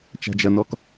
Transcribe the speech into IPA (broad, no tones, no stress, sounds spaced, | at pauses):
t͡ʃ a̤ d͡ʒ ɐ n ɔ k